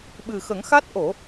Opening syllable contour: low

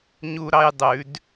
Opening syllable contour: high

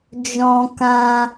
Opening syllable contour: high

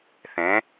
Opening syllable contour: rising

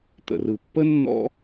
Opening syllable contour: low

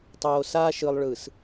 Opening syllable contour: low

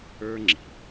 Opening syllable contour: high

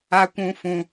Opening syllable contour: high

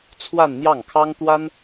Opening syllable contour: falling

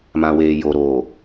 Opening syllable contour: low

